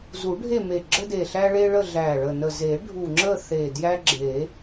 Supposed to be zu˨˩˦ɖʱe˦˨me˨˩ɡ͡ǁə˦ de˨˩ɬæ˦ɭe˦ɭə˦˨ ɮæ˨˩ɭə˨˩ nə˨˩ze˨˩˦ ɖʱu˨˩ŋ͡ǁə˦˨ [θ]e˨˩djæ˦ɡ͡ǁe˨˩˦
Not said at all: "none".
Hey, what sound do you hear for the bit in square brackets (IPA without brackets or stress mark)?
θ